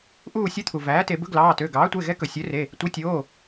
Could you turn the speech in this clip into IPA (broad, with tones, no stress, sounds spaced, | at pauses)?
ʔ uː˦˨ sʲ u˧˥ t̪ʰ u˩ v æː˩˥ t e˩˧ b ɵ˧˥ ɡ l ɑː˩˧˩ t ø˩˧˩ ɡ ɑː˩˥ tʷ e˩˧˩ ɣ ɛ˧˥ k ɵ˩ sʲ ø˩˥ r e˩˧˩ | tʷ i˩˥ tʲ oː˩˧˩